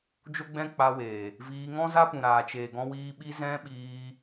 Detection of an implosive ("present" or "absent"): present